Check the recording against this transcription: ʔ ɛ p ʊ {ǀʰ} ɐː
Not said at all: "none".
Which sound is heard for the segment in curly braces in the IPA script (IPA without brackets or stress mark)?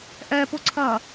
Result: ǀʰ